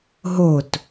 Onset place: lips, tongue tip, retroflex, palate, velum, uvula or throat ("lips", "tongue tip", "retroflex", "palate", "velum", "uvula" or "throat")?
throat